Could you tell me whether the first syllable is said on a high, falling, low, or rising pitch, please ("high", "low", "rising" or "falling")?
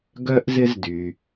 high